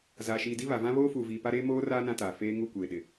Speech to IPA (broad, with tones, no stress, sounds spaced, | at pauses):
z aː˨ ʃ iː˨ d i˦ β a˨ v ã˦ β oː˦ f uː˨ v iː˨ p a˦ ɾ eː˦ m oː˦ r aː˦ n ã˦ t aː˨ f eː˦ ŋ u˦˨ kʷ eː˨ ɗ ɪ˨